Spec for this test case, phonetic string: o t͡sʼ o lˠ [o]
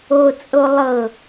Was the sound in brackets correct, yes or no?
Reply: no